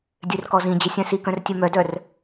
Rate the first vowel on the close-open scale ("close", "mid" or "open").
mid